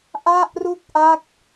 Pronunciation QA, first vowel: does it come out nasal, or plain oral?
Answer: oral